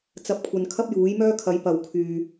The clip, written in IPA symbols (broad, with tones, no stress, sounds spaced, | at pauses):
t͡s ɐ˨˥ p̚ kʷʰ ɐ˨ n kʰ ɐ˥ p̚ j uː˨˥ j m œː˥ kʰ ɐ˨˥ j p ɐ˨ w kʰ yː˨